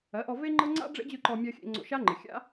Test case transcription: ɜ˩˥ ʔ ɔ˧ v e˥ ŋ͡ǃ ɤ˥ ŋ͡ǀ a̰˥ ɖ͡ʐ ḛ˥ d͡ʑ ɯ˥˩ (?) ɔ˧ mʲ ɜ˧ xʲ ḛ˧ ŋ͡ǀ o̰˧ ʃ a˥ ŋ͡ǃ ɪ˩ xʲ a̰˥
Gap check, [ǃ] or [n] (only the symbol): ǃ